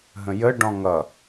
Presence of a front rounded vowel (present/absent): absent